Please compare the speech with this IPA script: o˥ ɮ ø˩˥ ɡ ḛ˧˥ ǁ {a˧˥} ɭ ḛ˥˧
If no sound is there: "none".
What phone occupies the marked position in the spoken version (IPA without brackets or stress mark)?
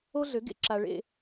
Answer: a˨